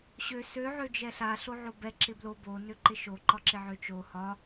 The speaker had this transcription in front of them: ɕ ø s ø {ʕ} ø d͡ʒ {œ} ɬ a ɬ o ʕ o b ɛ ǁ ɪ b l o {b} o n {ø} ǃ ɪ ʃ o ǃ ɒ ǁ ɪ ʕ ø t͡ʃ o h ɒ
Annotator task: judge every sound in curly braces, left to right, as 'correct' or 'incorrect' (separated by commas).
correct, incorrect, correct, correct